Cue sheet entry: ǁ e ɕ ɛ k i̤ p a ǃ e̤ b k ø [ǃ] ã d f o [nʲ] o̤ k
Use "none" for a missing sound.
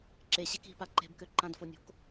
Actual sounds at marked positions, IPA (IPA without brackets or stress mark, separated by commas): ǃ, nʲ